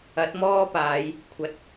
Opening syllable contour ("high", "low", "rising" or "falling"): rising